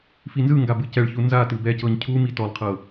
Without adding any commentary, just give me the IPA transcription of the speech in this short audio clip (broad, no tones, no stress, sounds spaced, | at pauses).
f i n z ɯ ŋ ɡ a b ɯ c ɛ ɭ ç u n z a t ɯ b ɛ c ɤ ɲ cʰ u m i t ɔ lˠ qʰ ɤ